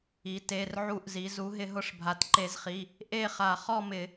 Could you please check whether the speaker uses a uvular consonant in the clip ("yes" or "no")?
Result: yes